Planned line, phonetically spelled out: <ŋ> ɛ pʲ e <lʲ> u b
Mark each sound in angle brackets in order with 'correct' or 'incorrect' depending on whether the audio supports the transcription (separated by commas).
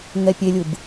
correct, correct